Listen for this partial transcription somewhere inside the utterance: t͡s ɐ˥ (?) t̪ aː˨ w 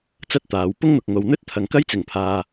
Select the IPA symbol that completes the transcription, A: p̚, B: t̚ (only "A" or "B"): B